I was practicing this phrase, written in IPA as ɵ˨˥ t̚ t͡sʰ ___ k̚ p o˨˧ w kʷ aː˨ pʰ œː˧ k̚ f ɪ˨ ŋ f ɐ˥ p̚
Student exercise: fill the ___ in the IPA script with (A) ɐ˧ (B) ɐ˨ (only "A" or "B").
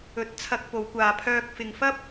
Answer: A